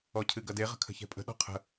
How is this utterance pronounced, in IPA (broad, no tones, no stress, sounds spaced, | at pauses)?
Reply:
ɔ cʰ ɨ ɡ ɐ d e ʁ ə̤ kʰ ə̤ ç ɛ̤ pʼ ə̤ ɗ ɔ̤ qʰ ə̤